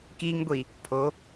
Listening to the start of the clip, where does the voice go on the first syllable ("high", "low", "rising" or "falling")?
high